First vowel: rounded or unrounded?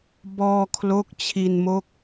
rounded